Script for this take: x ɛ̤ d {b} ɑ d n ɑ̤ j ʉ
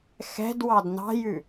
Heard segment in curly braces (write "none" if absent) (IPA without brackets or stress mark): w